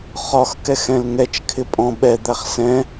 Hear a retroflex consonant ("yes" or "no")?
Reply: no